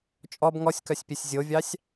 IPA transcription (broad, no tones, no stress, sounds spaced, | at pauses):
t͡ʃʼ ɔ b ŋ ɔ sʲ k œ sʲ pʲ e sʲ zʲ o vʲ ɑ sʲ